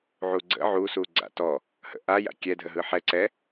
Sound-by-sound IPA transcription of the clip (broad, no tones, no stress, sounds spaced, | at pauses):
ʕ u ɡ͡ǀ ə̰ ʕ u s u ɡ͡ǀ a̰ t ɔ | h ə̰ ʔ a j a̰ kʲ ɛ dʱ ə ɦ ɯ ħ ɛ ǀ ɛ